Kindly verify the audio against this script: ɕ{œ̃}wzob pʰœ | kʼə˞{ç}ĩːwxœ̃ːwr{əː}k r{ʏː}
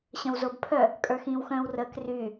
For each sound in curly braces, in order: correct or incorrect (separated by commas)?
correct, incorrect, correct, incorrect